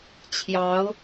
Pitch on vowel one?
rising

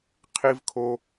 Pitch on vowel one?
high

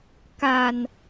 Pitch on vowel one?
low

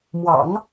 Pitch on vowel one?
low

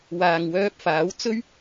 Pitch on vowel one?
low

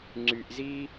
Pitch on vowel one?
low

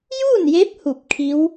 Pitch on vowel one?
falling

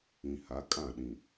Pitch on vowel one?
low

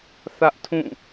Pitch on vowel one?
high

